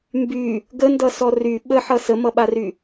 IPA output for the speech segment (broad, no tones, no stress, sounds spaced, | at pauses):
m b y | ɡ ə n d ʌ s ɔ r y ɓ ə ħ ʌ s ə m ʌ ɓ a r y